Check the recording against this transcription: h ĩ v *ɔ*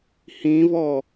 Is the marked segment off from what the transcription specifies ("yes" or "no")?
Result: no